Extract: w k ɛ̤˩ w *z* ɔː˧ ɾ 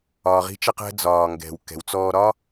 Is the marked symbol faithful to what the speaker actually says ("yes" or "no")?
no